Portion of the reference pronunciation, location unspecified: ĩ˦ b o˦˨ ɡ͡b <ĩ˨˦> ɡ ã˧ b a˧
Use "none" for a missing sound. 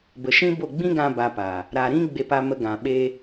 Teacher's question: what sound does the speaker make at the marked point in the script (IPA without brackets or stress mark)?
ĩ˦